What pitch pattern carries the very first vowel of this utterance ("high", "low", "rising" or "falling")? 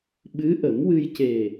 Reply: rising